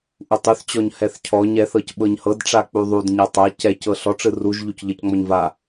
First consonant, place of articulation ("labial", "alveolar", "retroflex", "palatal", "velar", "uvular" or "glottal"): glottal